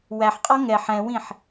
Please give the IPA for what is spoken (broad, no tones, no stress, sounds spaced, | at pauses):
w æ ħ qʼ ɔ ŋ ɛ ħ ɛ̃ w ĩ ħ